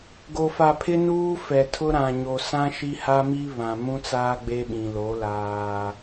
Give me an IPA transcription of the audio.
ɡo˨fa˨pʰɪ˦ nuː˦fɛ˨tʰʊ˦ ɾã˨ɲo˨sã˦ ʃi˦ ha˦ mi˦ βã˨mũ˦t͡saː˦ ɡ͡be˦ɓĩ˨lo˨˦ laː˦

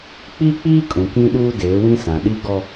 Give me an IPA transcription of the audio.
k͡pi˦k͡piː˦ kʼũ˨kĩ˦ɗuː˦ deː˨˦wĩ˦sã˨ ɗi˦ɡɔ˦

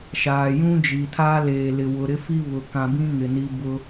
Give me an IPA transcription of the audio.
ʃaː˨ jũ˦d͡ʒi˨tʰa˦ leː˨lɪ˨ wʊ˨ɾɪ˦fi˦ βʊ˨kã˨bĩ˦ ŋɪ˨ni˦ bʊ˦

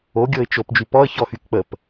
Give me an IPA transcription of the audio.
o ɡʲɤɪ̯t͡ʃop d͡ʒypɔə̯ çɔxykk͡pəp

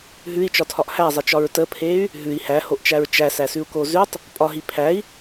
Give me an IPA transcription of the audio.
ɦʉi̯t͡ʃɒtʰɒʔ hæzˤet͡ʃɒɹ təpʰey̯ | ɦʉi̯ hæhoʔt͡ʃæɹ t͡ʃæsæsʉu̯ko zʉtˤ | pʼɒɦi pʰæi̯

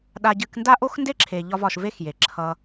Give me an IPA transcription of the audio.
ɗa˧ɟɨ˧k nda˦ʔo˦x nde˦ǁʰe˨ ʎɒ˧vɒ˨ʃ ve˦xje˨ǁʰʌ˧

